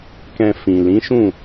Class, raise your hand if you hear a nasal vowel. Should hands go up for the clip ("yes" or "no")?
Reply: yes